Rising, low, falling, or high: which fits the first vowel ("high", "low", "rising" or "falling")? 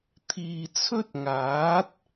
low